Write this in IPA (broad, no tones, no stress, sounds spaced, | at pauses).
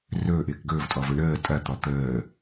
r ɵː ʔ ɪː k ɡ ɵː v tʼ ɔ v ɵ ɳ əː tʼ ɐ t̪ ɔ t̪ əː